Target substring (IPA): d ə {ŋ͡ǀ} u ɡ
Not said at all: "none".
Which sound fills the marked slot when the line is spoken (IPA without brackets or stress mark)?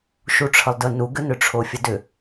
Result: n